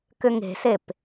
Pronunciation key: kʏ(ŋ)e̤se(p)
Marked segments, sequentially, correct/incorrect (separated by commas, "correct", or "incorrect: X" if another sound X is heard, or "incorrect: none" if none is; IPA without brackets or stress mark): correct, correct